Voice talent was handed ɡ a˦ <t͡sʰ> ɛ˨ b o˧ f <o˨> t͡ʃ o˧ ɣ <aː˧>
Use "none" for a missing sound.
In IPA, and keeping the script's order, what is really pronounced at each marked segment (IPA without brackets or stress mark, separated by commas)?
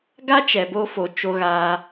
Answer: t͡ʃ, o˨, aː˧